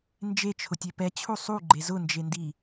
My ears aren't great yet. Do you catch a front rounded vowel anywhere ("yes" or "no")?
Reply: no